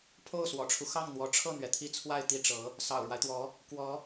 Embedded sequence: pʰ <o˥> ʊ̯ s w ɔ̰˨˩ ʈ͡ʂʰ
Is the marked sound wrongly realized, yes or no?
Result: yes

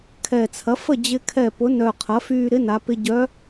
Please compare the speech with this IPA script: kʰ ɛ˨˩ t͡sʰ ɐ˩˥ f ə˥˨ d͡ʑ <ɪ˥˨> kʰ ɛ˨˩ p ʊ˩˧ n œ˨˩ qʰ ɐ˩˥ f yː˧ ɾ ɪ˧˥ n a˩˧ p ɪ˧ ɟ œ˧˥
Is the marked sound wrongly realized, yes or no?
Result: yes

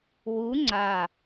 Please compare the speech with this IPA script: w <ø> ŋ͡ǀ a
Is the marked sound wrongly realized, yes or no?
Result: yes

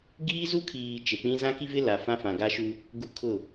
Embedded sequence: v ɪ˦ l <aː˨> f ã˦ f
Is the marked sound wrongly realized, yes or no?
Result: yes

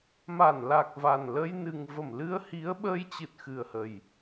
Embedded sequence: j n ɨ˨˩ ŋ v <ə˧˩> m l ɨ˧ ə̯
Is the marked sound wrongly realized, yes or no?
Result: no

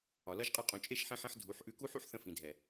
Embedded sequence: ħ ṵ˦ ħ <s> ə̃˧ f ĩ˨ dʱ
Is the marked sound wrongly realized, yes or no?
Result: yes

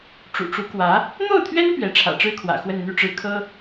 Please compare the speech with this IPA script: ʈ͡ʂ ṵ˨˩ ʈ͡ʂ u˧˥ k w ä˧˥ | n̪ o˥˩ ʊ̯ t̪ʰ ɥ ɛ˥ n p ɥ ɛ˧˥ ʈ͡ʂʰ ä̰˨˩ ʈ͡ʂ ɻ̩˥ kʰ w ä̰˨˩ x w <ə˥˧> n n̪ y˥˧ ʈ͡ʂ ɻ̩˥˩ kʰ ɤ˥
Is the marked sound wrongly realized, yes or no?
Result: no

